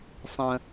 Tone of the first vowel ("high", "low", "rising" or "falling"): low